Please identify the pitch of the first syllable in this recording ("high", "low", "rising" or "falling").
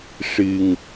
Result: low